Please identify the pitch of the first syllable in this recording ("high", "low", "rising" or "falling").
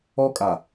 high